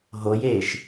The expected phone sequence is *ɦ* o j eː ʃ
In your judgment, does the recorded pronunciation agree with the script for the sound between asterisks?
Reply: yes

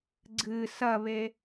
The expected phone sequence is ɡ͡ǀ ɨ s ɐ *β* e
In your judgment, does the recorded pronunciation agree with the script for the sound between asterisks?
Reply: yes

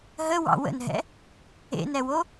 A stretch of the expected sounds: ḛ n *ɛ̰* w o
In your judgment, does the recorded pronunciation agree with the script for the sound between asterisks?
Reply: no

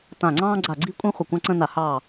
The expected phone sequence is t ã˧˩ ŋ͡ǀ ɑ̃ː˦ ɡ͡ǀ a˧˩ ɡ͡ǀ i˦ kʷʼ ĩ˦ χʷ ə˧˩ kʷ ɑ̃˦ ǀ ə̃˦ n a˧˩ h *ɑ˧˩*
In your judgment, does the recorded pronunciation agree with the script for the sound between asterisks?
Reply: yes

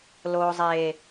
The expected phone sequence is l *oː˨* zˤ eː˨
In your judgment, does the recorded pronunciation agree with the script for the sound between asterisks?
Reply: yes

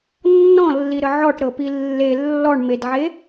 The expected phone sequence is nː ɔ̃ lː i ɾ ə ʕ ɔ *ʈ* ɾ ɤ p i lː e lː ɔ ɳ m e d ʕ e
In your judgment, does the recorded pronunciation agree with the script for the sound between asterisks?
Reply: yes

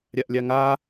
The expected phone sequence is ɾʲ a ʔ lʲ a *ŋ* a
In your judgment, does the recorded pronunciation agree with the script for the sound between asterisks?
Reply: yes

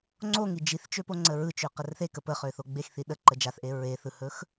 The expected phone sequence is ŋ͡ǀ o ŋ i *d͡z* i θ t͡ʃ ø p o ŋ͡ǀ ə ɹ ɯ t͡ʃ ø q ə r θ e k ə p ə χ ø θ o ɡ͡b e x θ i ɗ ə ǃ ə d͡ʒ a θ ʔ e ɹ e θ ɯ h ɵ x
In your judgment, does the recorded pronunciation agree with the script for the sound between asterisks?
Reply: no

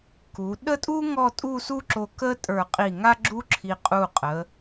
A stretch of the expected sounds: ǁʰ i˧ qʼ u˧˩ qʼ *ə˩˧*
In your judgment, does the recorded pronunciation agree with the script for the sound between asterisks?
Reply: yes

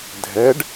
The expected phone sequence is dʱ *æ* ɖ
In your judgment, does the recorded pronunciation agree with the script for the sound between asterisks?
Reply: no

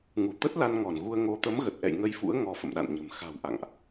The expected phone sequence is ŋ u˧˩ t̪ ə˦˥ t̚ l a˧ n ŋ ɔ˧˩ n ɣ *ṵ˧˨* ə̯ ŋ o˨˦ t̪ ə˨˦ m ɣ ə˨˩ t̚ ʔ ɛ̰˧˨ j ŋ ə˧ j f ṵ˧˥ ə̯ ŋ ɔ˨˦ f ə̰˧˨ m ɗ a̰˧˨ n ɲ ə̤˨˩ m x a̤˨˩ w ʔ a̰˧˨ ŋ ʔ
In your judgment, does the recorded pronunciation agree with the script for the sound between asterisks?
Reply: no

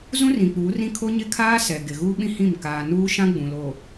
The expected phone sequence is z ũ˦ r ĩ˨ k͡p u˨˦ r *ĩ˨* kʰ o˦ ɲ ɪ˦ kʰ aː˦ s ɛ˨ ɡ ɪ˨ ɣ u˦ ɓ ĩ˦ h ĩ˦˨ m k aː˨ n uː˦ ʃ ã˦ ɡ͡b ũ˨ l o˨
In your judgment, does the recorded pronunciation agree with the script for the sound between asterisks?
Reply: no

